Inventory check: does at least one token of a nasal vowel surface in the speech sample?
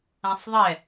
yes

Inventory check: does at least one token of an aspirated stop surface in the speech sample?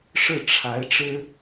yes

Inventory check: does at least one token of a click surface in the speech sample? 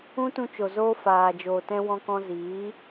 no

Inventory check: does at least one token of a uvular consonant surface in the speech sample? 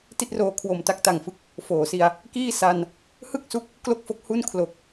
no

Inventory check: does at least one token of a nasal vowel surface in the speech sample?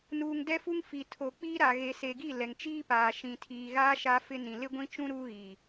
yes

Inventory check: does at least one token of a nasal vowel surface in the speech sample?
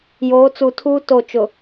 no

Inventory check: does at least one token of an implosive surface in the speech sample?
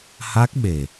yes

